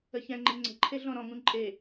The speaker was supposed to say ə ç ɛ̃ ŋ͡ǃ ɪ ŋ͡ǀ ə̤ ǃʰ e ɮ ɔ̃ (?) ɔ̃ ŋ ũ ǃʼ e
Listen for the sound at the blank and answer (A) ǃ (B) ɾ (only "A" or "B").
B